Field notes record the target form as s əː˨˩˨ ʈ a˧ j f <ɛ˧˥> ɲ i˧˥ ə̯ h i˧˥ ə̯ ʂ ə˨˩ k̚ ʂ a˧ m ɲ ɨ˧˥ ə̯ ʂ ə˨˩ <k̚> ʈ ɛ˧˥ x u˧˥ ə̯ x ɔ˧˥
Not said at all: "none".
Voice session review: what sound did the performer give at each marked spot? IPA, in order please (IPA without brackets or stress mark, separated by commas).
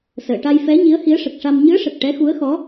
ɛ˧˥, k̚